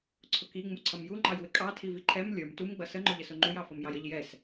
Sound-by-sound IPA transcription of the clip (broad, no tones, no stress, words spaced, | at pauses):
ǀʰʊki ŋ͡muǀʰʌmju ŋ͡ǃɑjwɪkʼɑ tʰiviǃʰɛm lʲə˞m tum ɡ͡bʌsə ŋ͡ǃʊʎəsʊŋ͡ǃuj ɑfʌmjɑjəʎ jɛs